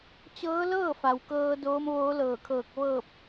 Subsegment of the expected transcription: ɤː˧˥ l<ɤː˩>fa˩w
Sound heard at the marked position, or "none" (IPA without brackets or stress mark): ɤː˥˨